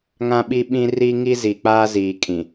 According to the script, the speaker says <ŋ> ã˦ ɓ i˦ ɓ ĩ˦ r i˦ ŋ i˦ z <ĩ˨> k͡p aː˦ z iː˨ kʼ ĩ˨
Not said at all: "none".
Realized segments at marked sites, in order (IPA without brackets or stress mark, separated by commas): ŋ, i˨